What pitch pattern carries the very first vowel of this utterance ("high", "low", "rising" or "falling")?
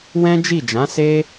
high